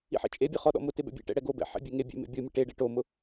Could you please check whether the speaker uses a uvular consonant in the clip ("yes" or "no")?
yes